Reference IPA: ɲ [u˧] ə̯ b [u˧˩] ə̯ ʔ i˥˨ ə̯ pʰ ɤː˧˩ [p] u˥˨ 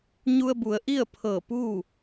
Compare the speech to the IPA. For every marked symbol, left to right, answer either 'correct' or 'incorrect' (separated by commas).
correct, incorrect, correct